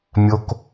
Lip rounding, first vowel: rounded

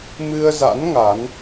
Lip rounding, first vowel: unrounded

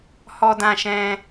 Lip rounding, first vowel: rounded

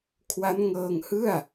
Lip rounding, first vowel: unrounded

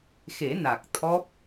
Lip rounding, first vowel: unrounded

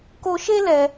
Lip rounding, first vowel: rounded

